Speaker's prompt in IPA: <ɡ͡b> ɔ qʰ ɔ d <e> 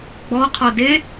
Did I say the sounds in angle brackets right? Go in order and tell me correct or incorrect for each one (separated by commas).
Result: correct, correct